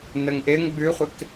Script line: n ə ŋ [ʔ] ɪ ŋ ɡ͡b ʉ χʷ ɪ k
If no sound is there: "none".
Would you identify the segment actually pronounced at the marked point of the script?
ʔ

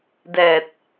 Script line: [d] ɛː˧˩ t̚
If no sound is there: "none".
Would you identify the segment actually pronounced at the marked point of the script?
d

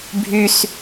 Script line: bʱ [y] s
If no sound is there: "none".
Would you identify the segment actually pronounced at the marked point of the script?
y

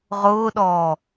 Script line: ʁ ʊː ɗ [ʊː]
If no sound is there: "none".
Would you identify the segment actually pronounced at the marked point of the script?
ɔː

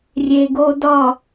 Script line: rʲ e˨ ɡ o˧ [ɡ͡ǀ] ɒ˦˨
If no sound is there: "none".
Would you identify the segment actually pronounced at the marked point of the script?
d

